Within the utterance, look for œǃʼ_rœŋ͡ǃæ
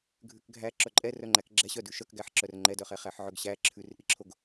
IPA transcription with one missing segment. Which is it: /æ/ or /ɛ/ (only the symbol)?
ɛ